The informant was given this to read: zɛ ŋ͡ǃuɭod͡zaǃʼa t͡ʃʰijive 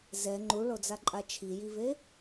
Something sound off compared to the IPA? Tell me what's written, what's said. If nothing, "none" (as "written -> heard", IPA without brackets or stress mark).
none